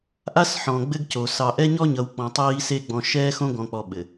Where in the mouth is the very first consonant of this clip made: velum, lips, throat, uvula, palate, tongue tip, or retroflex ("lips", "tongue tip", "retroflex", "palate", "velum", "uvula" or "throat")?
throat